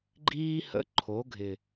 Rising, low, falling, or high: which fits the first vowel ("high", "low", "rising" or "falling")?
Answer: high